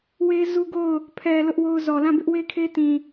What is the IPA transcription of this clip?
w e˦ z u˦ ɡ o˦˨ ʊ̯ | pʰ ɛ˨ l ʊ˦ ʔ w o˦ ʊ̯ z ɔ˨ l ã˦˨ b ɪ˦ ʔ w e˦ kʰ e˦ t ĩ˨

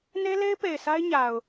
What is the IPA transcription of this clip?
n e˦ l e˦ ɪ̯ p e˨ ɪ̯ sʰ a˦ ɪ̯ ɲ a˨ ʊ̯

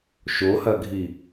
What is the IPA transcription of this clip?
ʃ o h ɐ ɡʱ i

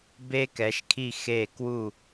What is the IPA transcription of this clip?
b e˧ k ɛ˩˧ ʃ kʰ i˧˩ x e˧˩ k w u˧˩

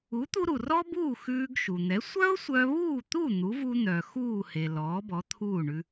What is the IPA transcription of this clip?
u˩˥ t̪ u˧ ɾ u˩ r ɔ˥ b uː˥˩ x ʉː˧ ɡ ʃ u˩ n̪ ɛ˩˥ sʷ œ˥ ʊ̯ sʷ œ˧ β uː˥˩ t̪ u˥˩ n̪ u˩˥ v u˧ n̪ œ˩ x uː˥˩ h e˩ l ɔː˩˥ b ɔ˩˥ t̪ʰ uː˥˩ ɳ ʉ˧

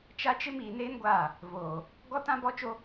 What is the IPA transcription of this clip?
t͡ʃ a˦ t͡ʃ ɪ˦ m iː˨ n eː˦ n ɡʷ aː˦˨ | v oː˨ | ɡ ɔ˦ t ã˦ b ɔ˦ t͡ʃ o˦

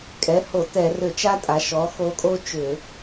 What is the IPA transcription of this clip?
kʼ ɛ˩˥ h o˧˩˧ t ɛ˧˩˧ r ʏ˧˩˧ t͡ʃ a˥ tʼ a˩˧ ʃ ɔ˩˥ x o˧˥ kʼ o˥ t͡ʃ ʏ˧˩˧

